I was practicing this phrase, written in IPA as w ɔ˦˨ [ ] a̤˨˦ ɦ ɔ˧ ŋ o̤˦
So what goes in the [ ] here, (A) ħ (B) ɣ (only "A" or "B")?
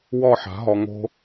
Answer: A